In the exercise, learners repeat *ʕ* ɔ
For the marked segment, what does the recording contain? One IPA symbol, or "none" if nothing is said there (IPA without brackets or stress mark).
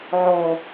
ʕ